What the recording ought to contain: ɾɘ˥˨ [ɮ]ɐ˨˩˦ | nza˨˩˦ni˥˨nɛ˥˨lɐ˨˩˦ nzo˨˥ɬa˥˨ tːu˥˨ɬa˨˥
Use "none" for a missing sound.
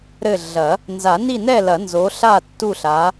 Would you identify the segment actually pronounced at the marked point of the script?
ɮ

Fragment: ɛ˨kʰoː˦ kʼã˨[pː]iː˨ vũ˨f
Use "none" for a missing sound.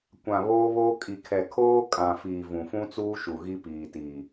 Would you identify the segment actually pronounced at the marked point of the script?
f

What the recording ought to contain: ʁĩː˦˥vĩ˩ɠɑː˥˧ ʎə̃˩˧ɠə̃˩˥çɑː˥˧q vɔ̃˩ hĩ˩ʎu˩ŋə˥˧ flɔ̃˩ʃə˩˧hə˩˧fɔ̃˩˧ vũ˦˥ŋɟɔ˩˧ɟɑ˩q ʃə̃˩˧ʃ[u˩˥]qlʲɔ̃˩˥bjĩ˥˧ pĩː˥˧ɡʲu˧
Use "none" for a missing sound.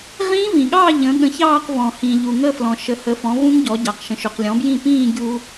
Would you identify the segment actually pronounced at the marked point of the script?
u˩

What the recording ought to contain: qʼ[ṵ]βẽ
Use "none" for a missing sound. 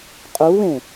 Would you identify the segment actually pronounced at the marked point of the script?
u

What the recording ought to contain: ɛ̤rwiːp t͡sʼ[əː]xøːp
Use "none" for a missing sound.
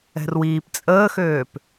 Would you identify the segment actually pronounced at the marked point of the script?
əː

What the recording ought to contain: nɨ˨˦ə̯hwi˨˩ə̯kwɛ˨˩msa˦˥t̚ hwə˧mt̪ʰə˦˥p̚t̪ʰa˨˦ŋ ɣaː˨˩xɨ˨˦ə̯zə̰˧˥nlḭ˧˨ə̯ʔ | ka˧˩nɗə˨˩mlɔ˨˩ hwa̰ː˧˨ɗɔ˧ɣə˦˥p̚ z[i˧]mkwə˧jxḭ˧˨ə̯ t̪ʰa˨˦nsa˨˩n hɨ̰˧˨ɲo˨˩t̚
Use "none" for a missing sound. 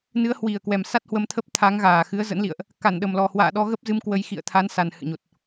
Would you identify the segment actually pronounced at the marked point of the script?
ɨ˧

